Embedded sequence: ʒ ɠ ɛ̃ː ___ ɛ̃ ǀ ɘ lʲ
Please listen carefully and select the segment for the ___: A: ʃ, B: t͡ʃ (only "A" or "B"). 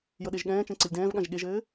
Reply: B